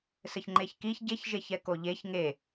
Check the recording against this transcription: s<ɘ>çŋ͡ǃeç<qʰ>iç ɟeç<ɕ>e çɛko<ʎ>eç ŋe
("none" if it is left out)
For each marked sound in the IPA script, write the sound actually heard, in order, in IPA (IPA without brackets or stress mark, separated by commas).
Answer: ɘ, k, ʒ, ʎ